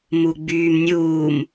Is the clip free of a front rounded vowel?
no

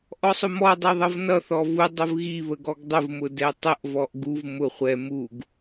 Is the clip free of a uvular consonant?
no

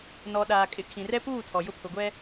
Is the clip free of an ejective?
no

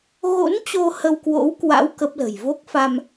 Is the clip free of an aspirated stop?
yes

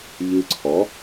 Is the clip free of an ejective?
yes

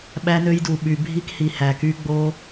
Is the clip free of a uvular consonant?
yes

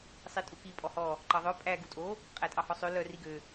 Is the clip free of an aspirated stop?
yes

